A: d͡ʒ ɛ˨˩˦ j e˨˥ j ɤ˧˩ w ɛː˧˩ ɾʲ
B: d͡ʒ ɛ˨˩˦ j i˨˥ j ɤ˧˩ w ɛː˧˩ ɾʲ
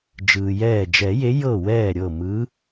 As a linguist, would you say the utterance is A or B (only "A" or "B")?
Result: A